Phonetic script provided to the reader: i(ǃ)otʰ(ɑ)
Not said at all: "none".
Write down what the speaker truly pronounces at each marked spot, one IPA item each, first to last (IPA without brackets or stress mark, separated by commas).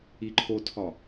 ǃʰ, ɒ